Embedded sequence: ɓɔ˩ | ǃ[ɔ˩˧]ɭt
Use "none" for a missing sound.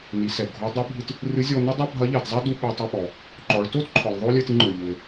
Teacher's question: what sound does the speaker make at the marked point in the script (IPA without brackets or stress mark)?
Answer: ɔ˩˧